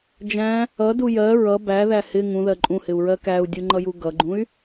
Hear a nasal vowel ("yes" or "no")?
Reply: yes